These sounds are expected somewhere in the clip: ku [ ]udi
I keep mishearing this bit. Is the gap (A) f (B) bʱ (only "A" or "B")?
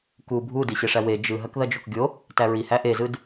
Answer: B